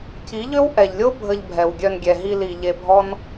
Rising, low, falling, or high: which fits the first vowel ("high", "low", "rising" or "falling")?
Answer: rising